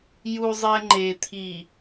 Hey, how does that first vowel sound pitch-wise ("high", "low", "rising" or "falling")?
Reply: low